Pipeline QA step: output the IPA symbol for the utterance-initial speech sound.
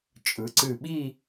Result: t͡ʃʼ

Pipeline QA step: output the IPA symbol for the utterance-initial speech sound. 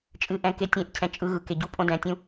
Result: t͡ʃʼ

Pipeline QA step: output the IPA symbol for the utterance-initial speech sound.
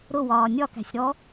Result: ɾ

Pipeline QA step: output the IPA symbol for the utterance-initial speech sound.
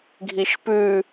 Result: ɡʱ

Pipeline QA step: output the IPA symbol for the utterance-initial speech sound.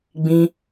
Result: ɡ͡b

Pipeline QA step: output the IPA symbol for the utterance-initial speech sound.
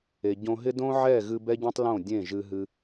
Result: e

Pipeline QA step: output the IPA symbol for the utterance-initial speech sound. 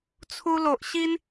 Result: t͡sʰ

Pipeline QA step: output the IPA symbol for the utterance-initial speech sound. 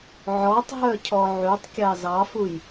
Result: ʕ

